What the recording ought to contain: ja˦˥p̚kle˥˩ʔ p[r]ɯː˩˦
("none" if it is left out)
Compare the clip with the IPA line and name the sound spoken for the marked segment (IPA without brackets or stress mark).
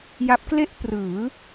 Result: r